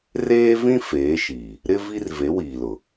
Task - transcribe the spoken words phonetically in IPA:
r eː˦ v ĩ˦ f eː˨˦ ʃ iː˨ | ɾ ɪ˦ v i˦ r v e˨˦ w iː˨ l ʊ˨

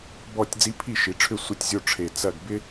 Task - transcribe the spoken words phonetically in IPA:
b ɔ˦˨ tʲ d͡z i˧˥ pʰ i˦˨ ʃ i˩˧ ʈ͡ʂʰ ʏ˦˨ sʷ ə˦˨ tʲ zʲ o˦˨ ʈ͡ʂʰ e˨˩ t͡s ɐ˦˨ ɡ b ɪ˥

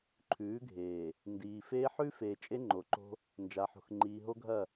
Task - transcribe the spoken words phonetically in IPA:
ǃʰ ʉː˨˦ ɡʱ eː˨ | n d iː˨ f eː˦ ħ ʉ˦ f eː˨ t͡ʃʼ e˦ ŋ͡ǃ o˨ ǃ o̤˦ | n d͡ʒ a˨ ħ o̤˨ x ŋ͡ǃ iː˨ ɦ o˦ ɡʱ ɐ˦˨

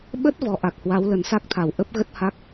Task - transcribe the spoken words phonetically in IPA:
ɓ ə˦˥ t̚ v ɔ˨˦ ʔ a˨˩ k̚ h w a˨˦ w l ə˨˩ n s a˦˥ k̚ t̪ʰ a˧˩ w ʔ ə˦˥ p̚ ɣ ə˦˥ t̚ h a˦˥ k̚

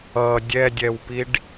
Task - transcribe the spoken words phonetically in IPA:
ʌ dʲ ɛ dʲ ɛ w p i ɖ

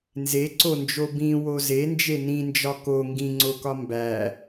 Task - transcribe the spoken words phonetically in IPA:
n z e ǀ o n d͡ʒ o b ĩ w o z e n d͡ʒ e n ĩ n d͡ʒ ɒ k o ŋ ɡ ĩ ŋ͡ǀ o k ɒ m b æ

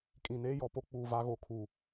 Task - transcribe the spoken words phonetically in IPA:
kʼ ĩ˨ n eː˦ j ɔ˨ p o˦ k͡p uː˨ v a˦ ɣ o˨ kʰ uː˨

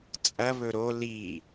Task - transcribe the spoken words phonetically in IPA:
t͡sʼ ɐ β ɵ ɾ o l i

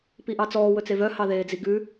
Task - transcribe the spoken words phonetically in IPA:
p i ʔ ɑ t͡s ɔː w ɵ t͡s e v œ h ɑ ð eː d͡z i ɡ ʉ

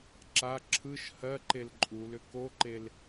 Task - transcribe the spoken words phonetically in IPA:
ǁ a ǁʰ ɯ ʃ h ɜ ǃ e l ǃʼ u l ʏ k o ǃ e l

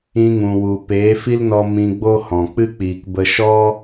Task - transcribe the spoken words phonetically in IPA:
ĩ˧ ŋ ũ˨ w u˨ p eː˨˦ f i˦ l n ɔ˧ m ĩ˧ ɡ͡b o˦ h ɔ̃˨ k͡p ɨ˦ k͡p iː˨ k b ə˧ ʃ ɔ˦

